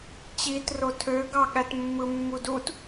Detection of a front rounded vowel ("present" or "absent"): present